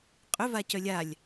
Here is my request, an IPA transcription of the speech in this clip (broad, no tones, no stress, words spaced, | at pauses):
qʼʏva cœlʲalʲ